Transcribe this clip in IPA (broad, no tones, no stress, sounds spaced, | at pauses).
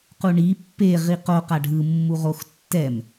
q u ɳ i pː e ʁ i q o q a ɖʱ ɯ mː u ʁ o x tː ɛ m